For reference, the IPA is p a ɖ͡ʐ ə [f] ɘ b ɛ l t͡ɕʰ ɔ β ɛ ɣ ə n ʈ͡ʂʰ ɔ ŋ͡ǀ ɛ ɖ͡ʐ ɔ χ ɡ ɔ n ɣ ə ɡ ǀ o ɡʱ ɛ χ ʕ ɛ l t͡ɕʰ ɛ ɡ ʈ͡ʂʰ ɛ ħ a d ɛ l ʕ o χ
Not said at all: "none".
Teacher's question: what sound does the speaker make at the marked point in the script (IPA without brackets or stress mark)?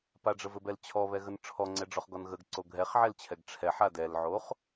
v